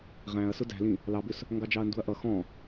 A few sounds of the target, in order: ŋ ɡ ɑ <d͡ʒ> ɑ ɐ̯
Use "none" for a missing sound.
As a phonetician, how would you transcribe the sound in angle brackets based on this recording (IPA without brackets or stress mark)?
d͡ʒ